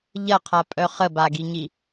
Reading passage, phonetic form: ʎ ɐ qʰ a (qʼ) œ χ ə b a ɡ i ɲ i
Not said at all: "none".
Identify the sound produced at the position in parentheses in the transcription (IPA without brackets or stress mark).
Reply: pʼ